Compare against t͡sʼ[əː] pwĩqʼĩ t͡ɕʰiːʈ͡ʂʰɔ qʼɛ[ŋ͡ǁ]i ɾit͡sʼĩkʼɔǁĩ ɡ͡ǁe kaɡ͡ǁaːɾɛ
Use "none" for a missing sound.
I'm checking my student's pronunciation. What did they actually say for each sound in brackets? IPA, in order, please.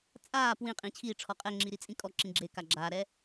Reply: aː, ŋ͡ǁ

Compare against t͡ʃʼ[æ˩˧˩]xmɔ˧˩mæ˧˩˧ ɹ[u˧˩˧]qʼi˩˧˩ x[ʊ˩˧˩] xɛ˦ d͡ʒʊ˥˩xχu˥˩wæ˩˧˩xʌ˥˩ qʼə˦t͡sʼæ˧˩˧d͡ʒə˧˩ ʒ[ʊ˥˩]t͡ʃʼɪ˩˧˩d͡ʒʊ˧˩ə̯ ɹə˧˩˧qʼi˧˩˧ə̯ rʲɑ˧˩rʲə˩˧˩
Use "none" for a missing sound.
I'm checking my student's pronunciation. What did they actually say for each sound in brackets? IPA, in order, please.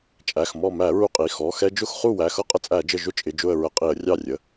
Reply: æ˩˧˩, u˧˩, ɔ˩˧˩, ʊ˦

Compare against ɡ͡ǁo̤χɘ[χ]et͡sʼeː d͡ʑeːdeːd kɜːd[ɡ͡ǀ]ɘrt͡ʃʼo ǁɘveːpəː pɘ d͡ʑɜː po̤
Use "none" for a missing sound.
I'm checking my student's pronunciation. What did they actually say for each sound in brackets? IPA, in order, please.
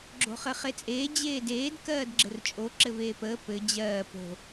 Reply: χ, ɡ͡ǁ

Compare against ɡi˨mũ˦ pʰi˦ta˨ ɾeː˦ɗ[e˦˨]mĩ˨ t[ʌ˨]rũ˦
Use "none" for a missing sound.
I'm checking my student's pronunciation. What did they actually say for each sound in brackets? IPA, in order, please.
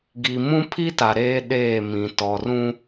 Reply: eː˦˨, ɔ˨

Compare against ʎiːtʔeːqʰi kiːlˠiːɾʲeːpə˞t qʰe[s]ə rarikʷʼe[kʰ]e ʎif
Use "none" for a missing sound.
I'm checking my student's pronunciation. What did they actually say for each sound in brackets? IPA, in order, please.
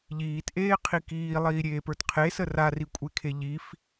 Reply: s, kʰ

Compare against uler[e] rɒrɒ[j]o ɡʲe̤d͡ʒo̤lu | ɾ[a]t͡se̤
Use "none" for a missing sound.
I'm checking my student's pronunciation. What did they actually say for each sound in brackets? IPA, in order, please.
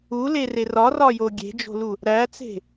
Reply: e, j, æ

